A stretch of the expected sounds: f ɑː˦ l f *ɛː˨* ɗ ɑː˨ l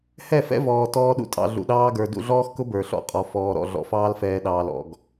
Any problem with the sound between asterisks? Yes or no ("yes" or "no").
no